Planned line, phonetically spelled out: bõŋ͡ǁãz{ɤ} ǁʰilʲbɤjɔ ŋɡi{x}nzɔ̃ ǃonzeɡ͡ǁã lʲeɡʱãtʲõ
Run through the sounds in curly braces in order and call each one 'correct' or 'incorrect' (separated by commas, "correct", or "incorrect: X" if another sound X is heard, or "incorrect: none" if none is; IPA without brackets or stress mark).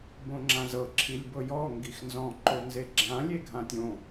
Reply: correct, correct